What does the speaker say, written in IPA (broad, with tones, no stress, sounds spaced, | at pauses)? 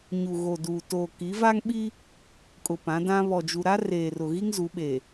ɲ u˨ ɣ o˨ d uː˨ t oː˨ k i˨˦ v a˦ ŋ ɓ i˦ | kʼ ʊ˨ p ã˨˦ d ã˦ β ɔ˨ d͡ʒ u˨ ɾ a˦ r eː˨ r ʊ˨ ɣ i˦ ŋ z u˨˦ ɓ e˨